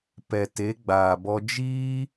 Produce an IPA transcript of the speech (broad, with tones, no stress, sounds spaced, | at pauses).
p ɛ˨ t e˨˦ ɡ͡b aː˨ b ɔ˧ d͡ʒ iː˦